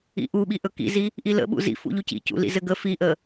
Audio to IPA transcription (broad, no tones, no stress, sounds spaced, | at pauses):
ḭ ʔ u ɓ i ʔ ɵ k ḭ z i | ʔ i l ə̰ ɓ ṵ z ḭ f ṵ ʎ u c ḭ c ṵ l ḭ z ɘ ɡ ə f i ʔ ə